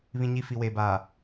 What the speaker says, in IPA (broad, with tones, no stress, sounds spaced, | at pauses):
β ĩ˨ ɲ i˨ f i˨ w eː˨ b aː˨